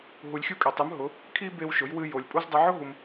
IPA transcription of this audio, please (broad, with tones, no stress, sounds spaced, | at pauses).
ɦ u˧ lʲ xʲ u˥ kʼ ɛ˧ tˤ ɨ˧˥ m ɦ ʊ˧˥ | kʰ i˥ b e˥ w ʃ ʊ˧˥ j w ɨ˥ j o˧ lʲ pʼ u˥ z dˤ i˧ ʕ ʊ˥ ɦ u˧ m